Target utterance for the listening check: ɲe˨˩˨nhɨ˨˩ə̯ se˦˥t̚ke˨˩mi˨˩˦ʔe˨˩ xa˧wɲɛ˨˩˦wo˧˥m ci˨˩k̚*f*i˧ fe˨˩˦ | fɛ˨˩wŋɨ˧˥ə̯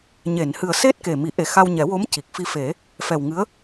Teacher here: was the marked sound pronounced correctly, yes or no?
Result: yes